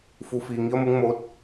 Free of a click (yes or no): yes